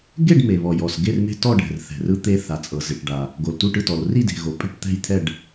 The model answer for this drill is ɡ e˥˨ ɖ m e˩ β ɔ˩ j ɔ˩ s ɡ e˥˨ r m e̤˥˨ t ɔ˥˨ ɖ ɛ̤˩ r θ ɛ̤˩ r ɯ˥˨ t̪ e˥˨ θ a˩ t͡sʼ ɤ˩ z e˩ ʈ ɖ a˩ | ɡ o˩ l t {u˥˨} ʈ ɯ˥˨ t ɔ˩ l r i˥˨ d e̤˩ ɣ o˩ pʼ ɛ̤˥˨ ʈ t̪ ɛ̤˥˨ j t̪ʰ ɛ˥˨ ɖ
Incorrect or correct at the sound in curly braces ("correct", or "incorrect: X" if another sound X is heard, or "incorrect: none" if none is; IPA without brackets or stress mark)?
correct